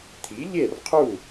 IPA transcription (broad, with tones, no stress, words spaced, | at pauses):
t̪ʰi˩˥ʎe˥˩rqʰu˥˩